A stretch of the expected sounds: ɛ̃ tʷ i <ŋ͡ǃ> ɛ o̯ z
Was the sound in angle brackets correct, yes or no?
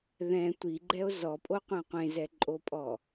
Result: no